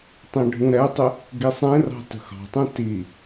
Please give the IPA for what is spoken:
tˤ ɛ̃ ɖʱ ũ ɾ ɛ tˤ ɪ | ɡ i sˤ ɛ̃ r ɑ̤ t ə̤ x ɑ̤ tˤ ũ t i

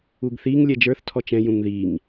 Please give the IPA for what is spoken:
u ɡ θ i ŋ lʲ ɛ d͡ʒ ə˞ θ tʰ ɔ t͡ʃ ɛ̃ j ũ ŋ ð i ŋ

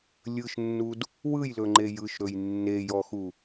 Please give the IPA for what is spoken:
lʲ ɯ ʃ nː u d | w ɯ j l ɵ ŋ͡ǃ e j ɯ ʃ ɾ ɵ j nː e j ɔ x u

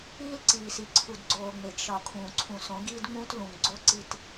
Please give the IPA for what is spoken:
iː˦ l ǀ iː˨ s i˨ ǀʰ u˨ d ɡ͡ǀ oː˨ ŋ͡m e˨ ɡ ʃ ɒ˨ kʰ ũː˨ ǀʰ ũ˨ s õ˨˦ ɡ iː˦ d ŋ͡m ũː˦ t l ũ˨ ŋ ɡ͡ǀ o˦ ǀ i˨ t

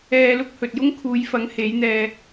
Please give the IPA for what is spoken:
ɛː˧ l ʊ˥ k̚ h ɵ˨ t̚ j ʊ˥ ŋ kʰ uː˨˧ j f ɐ˨˥ ŋ h e˨˥ j n̪ ɛː˧

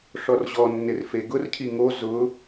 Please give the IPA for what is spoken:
ʂ ɔ r ʑ ɔ nː ɪ r f e ɡ ʊ r cʰ i ŋ o z ʊ

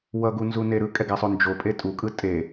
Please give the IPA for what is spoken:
w ʌ ɡ u n z u n e ɾ ɯ kʼ ɛ ɡ a sˤ o n d͡ʒ o pʼ e tʼ u kʼ ɯ tʼ e

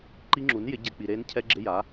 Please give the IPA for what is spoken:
ǃ i˦˥ ŋ͡ǁ u˩˥ n j ɪ˩˥ ɟ ɛ˨ k͡p i˨ ɾ eː˦˥ n cʰ ɛ˦˥ ɡ͡ǁ ɪ˧˥˧ j a˩˥

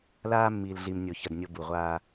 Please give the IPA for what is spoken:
l aː˦ mː iː˨ l ɮ i˨ m nʲ o˨ ç ɜ˨ d nʲ o˦ b u˨ ʁʷ aː˦

